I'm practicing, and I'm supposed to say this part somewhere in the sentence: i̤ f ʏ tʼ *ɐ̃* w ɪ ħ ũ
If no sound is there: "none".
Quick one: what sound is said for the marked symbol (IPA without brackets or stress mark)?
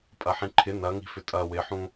ɐ